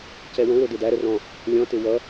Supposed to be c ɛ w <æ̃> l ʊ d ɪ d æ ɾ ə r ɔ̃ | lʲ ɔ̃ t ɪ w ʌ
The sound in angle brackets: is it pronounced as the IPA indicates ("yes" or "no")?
no